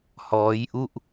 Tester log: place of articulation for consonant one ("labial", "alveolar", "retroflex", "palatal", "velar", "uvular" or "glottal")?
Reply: glottal